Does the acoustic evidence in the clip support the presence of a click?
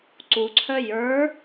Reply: yes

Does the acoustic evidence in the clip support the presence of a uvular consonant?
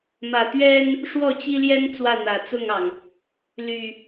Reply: no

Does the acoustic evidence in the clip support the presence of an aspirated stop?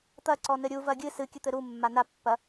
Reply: no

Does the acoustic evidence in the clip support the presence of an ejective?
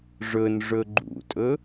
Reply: yes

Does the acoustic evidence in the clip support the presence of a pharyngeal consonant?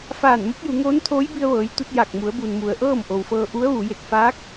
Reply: no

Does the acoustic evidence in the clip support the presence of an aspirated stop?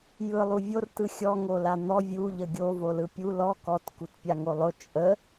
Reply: no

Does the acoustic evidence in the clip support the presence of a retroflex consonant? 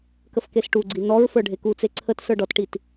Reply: yes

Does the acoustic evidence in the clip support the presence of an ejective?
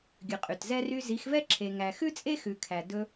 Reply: yes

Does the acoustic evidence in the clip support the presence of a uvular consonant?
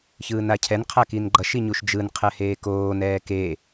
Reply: yes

